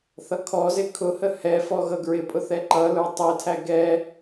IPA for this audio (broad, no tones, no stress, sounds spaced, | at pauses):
θ ʌ kʰ ɔ z ɪ kʰ ʊ h ə h ɛ f ɔ ɣ ʌ ɡ ɹ ɪ pʼ ʊ θ ɛ ǃ ʌ l ə˞ tˤ ɛ tʰ æ ɡ ɛ